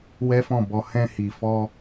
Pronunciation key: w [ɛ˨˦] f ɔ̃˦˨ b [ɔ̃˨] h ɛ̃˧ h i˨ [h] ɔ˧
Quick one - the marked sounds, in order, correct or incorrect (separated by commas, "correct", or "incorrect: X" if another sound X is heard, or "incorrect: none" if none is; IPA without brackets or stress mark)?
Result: incorrect: ɛ˦, incorrect: ɔ˨, incorrect: f